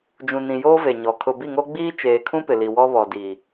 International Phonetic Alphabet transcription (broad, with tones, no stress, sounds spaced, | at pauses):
d͡ʒ ũ˨ n ĩ˨ j oː˦ v e˨ ɲ ɔ˨ kʰ ʊ˨ b i˦˨ ŋ o˦ ɡ͡b iː˦ t͡ʃ eː˨ kʰ ũ˦ p ɪ˨ l i˨ w ɔ˦ β ɔ˨ d iː˨